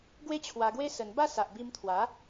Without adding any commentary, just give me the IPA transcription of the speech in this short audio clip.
ɡwe˦t͡ɕʰwa˧ɡwe˦ sə˧n ba˥˧sa˨ʔbi˧mt̪ʰwa˨˦

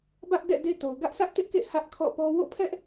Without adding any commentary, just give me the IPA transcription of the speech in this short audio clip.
bä˦ʔdɛ̰˦˨ de˦to˨ʊ̯ ɡä˦ʔsä˦ʔtɪ˦ʔkḛ˦˨ hä˦ʔ kʰɔ̰˦˨pɔ˦ wo̰˦˨pʰɛ˦ʔ

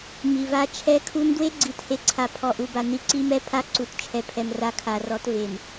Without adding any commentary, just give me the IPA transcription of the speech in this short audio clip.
mi˨va˦t͡ʃʰɛ˦ kʰu˦n dwe˦ɡ͡ǀi˨˦the˨ǀʰa˨ pʰɔ˨ʔu˨ba˨ ni˨ ǀi˦mɛ˦ pʰa˦ǀu˨t t͡ʃʰɛ˨pʰɛ˨mra˨˦ kʰa˨rɔ˨˦tve˨m

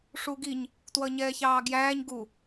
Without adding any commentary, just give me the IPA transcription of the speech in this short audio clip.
ʂuɡiɲ | twʌɲɛːçɑːɡjæːɲ ɡu

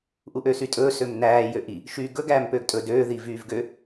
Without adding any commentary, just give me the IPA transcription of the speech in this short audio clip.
ʔuʔøsytʼɵː sømnæː jøʔi | ʃyːɡɵɡ æːmpøːɡtʼɵ døː ðivyːvɡø

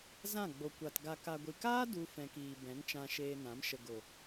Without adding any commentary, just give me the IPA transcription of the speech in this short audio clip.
zã˦˨ɡ͡bo˨ kʷa˨t ɡa˨ka˨ɡʷi˨kaː˦ du˧ fɛ̃˨kiː˨ bɛ̃˨˦nt͡ʃã˧ ʃeː˧nã˨˦m ʃə˨ ɡo˨

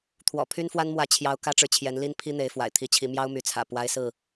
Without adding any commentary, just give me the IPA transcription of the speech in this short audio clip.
t̪ʰwɔ̰˨˩ pʰy˦nfwa˦nmwä˨˦ t͡ɕʰjɑ˦ʊ̯ kä˦ʈ͡ʂɻ̩˨t͡ɕʰjɛ˨˦nli˦n pʰi˦n̪e˨˦ɪ̯fwa̰˨˩ɪ̯ t̪ʰi˨˦t͡ɕʰi˨˦ mjɑ˦ʊ̯my˨˦t͡sʰä̰˨˩ pwa˦ɪ̯sɹ̩˥˨

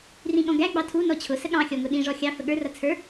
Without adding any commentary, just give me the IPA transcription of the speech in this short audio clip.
rĩɠɔ̃ɡæ ɡ͡bɑtʰu nɔt͡ɕʰʊ səɠɑ̃ xʲɔŋʊɗĩ ʐɔxʲɑ fəɠə˞ rʌt͡sʰə˞

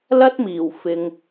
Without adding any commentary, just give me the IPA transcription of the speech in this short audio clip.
lɐ˥t̚miː˨˩w fɪ˨ŋ

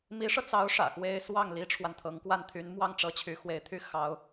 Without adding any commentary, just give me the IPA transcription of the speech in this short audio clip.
mi˧˥ʂɤ˧t͡sɑ˧˥ʊ̯ ʂä̰˨˩xwe˥ɪ̯ swɑ˥˩ŋ li˥ʈ͡ʂʰwa˨nt̪ʰɤ˧˥ŋ kwa˥˩nt̪ʰy˧˥nmwɑ˥ŋ ʈ͡ʂɤ˧˥t͡ɕʰy˧˥xwe˧˥ɪ̯t̪ʰy˥ xɑ˧˥ʊ̯

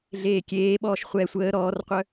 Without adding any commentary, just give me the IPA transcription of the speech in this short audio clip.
ɮeːkʲeːɓɔːʃ χʷɛ sʷəː ɾɔːrqʷœ

